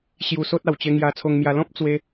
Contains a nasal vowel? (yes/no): yes